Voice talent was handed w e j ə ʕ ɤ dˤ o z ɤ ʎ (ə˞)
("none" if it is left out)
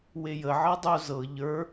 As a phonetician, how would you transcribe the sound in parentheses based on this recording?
ə˞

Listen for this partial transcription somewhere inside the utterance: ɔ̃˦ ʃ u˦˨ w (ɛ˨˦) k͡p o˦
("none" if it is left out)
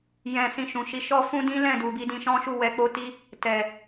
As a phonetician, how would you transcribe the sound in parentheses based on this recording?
ɛ˨˦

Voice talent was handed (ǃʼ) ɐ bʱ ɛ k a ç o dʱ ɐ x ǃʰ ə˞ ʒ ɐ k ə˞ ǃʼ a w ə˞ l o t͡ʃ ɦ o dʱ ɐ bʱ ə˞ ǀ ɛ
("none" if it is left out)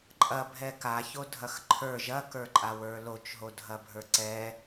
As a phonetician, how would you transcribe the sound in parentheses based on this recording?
ǃʼ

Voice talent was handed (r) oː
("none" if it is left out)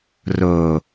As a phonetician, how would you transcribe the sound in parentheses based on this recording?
r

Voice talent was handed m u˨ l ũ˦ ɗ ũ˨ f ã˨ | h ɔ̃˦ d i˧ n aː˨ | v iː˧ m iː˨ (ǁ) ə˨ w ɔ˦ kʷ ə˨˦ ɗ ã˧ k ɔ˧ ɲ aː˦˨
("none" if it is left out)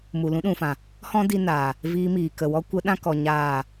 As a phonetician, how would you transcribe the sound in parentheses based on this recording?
k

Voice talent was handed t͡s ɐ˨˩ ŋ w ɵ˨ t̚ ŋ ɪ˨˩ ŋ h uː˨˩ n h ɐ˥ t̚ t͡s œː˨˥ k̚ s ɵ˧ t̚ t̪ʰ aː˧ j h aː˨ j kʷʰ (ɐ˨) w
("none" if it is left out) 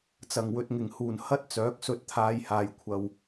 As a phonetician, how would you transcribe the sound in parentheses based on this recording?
ɐ˨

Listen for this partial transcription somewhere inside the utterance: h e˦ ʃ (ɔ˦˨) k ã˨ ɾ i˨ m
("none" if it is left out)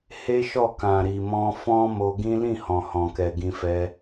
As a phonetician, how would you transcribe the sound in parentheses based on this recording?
ɔ˦˨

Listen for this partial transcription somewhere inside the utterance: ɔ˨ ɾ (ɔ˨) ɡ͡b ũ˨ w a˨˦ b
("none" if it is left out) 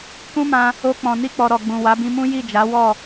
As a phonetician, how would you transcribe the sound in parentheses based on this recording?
ɔ˨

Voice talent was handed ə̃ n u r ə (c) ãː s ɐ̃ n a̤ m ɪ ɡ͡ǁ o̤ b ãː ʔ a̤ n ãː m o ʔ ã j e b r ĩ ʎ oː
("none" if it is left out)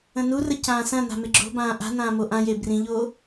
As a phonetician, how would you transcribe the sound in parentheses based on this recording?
c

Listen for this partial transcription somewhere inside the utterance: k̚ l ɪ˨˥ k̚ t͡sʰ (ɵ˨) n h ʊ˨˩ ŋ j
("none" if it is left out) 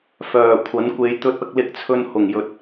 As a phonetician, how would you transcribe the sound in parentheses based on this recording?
ɵ˨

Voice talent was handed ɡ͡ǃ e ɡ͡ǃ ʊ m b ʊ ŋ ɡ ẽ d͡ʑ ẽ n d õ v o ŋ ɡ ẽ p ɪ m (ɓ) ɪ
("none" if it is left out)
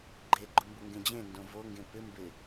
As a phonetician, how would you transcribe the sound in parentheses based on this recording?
b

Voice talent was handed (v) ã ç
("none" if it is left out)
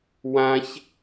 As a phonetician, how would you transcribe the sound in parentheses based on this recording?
w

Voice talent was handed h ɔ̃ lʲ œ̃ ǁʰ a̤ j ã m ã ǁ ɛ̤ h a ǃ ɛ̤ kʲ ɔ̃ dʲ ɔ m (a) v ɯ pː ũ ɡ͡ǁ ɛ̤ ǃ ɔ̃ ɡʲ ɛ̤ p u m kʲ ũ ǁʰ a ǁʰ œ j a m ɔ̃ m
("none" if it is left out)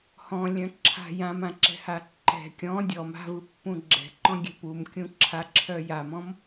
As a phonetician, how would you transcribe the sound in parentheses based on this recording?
a̤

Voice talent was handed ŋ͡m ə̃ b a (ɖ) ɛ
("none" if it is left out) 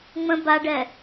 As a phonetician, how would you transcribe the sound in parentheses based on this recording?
ɖ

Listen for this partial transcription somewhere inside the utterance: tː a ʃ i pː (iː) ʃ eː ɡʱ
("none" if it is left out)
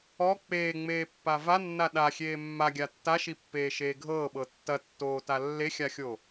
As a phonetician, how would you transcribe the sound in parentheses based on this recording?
eː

